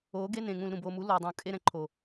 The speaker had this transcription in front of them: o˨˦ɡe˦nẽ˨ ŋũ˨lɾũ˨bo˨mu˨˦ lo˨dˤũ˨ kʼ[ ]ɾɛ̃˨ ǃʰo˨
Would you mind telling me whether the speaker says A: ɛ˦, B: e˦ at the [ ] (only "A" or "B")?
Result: B